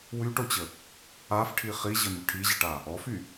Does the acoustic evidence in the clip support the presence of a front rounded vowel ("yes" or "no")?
yes